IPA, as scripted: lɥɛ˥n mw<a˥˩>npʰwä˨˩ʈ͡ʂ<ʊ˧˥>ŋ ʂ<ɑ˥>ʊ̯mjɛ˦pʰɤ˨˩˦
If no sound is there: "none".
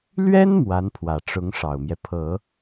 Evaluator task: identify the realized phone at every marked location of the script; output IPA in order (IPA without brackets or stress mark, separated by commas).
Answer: a˧˥, ʊ˧˥, ɑ˨˩